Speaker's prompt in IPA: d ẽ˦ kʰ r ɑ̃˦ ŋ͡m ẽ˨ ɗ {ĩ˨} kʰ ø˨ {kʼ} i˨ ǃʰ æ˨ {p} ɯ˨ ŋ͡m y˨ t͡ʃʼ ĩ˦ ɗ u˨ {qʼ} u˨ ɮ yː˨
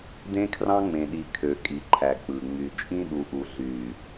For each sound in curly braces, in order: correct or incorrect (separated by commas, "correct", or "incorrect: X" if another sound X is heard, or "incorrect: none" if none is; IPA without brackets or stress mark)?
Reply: incorrect: i˨, correct, incorrect: k͡p, incorrect: ʔ